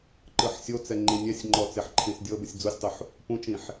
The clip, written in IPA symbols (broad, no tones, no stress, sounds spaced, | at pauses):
ǃ ɯ ħ sʲ o t͡s ɛ ŋ͡ǃ ĩ nʲ ɛ sʲ ŋ͡ǃ ɔ t͡s e ħ ǃʰ ĩ s dʲ ɤ b ɯ sʲ d͡z u sʲ tˤ u ħ | p ũ t͡ʃ ĩ ħ